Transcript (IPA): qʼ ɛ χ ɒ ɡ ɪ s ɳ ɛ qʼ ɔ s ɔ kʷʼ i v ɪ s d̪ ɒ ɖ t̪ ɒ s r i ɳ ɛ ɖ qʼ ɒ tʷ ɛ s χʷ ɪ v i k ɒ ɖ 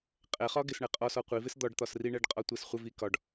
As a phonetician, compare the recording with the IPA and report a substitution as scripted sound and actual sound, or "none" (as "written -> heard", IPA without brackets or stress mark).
kʷʼ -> qʷ